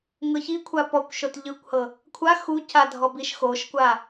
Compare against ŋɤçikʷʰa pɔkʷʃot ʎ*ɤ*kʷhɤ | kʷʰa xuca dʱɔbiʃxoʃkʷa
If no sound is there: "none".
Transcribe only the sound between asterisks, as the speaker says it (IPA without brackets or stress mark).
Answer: ɯ